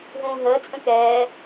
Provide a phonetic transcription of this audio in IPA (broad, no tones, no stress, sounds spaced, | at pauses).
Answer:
ɦ ũː ɦ əː t͡sʼ ə̃ k ɛː